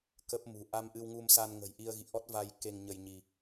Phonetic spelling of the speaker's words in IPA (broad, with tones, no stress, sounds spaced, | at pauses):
k ə˦˥ p̚ m ṳ˨˩ ʔ a˧ m ʔ ɨ˧ w ŋ u˧ m s a˧ n ŋ ə̤˨˩ j ʔ i˧ ə̯ ɣ ḭ˧˨ ʔ ɔ˦˥ t̚ v a˧ j k e˧ ŋ ɲ ə˧ j ɲ i˧